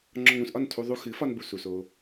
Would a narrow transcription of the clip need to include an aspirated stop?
yes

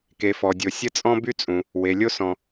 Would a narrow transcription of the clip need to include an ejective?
yes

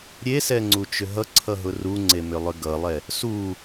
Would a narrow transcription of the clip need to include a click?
yes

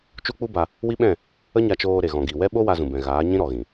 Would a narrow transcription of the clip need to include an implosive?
yes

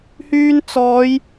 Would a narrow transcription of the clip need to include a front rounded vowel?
yes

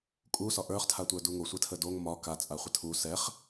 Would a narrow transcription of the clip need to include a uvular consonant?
yes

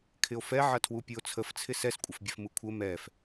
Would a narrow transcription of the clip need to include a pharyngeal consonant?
yes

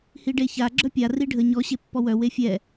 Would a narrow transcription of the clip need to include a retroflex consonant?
yes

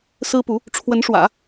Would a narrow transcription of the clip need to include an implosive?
no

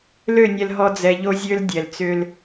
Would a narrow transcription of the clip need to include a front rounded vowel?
yes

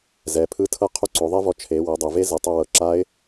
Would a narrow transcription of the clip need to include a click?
yes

